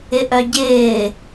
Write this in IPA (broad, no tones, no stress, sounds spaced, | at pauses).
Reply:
ɪ ʔ œ ɟ ɪː